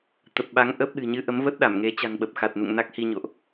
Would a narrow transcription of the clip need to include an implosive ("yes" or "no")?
yes